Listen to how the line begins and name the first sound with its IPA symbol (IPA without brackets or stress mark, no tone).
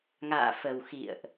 ŋ